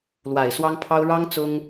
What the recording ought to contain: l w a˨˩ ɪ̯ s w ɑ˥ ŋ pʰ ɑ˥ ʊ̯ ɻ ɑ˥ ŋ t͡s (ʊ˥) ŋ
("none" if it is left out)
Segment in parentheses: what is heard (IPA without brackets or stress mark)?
ʊ˥